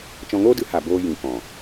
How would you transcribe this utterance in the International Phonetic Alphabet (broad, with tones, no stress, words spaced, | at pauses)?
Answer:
t͡ʃɔ̃˧ŋoː˦dɨ˨˦ ha˨ boː˧ jĩ˨kɔ̃˨